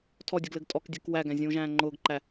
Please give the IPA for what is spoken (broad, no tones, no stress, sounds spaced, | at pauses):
tʰ ɔ dʲ ɘ ɡ l ɘ ɡ tʼ ɔ k dʲ e k w æ ɡ æ̃ zʲ ũː ʒ æ̃ː ŋ͡ǃ ʊː ɡ ǃ æ